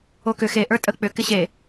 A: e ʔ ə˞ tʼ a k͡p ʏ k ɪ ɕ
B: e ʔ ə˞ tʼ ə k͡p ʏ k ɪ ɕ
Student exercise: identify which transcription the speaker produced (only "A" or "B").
B